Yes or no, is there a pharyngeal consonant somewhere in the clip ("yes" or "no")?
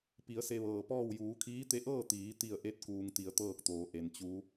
no